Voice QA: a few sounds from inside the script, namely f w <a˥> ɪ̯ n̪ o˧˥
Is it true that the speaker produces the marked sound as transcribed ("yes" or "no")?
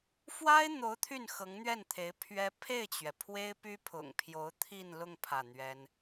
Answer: yes